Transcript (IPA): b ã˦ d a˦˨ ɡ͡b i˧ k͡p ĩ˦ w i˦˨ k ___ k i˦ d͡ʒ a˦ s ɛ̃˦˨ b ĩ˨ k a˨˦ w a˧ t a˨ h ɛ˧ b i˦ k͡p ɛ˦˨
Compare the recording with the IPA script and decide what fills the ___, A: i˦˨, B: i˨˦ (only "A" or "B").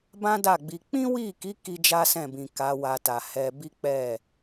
B